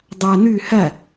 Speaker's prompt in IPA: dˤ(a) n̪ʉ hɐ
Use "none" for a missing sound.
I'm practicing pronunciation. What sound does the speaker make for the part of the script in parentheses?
a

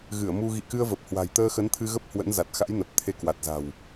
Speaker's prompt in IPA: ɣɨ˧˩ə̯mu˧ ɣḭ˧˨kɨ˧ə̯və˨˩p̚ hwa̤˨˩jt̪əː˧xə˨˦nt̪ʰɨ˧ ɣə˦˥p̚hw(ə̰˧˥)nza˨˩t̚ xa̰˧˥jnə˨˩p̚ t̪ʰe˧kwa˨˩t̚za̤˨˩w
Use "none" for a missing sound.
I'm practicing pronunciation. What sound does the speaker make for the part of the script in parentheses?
ə̰˧˥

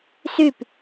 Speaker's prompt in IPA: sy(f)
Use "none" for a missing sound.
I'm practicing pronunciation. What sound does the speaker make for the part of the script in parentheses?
p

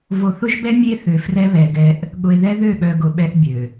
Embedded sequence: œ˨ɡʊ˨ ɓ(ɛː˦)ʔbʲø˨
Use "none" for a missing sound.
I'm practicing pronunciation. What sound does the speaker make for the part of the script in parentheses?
ɛ˦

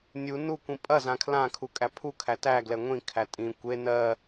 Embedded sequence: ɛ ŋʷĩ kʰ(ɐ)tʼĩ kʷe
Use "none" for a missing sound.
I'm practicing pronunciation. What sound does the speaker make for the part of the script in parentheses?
æ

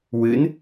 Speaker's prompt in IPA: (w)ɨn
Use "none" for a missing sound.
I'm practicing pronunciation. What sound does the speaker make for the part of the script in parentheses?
w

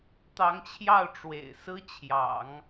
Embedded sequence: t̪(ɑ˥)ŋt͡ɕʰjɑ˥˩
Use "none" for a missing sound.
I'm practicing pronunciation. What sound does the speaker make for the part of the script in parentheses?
ɑ˧˥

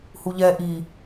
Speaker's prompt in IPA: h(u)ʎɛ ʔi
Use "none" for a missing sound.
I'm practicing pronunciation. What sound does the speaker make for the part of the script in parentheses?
u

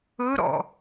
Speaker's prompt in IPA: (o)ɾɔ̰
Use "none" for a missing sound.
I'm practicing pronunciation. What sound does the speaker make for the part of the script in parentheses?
ɵ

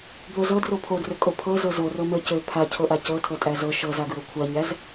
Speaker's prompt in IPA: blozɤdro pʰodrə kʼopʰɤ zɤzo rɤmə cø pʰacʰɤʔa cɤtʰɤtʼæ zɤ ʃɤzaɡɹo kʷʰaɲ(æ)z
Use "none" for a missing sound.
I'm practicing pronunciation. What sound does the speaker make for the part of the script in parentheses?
æ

